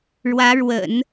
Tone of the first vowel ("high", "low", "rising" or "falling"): rising